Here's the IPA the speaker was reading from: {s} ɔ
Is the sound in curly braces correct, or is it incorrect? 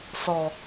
correct